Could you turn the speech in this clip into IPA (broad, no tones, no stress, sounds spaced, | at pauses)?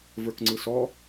v ə˞ k ŋ͡ǀ ɯ s ɔ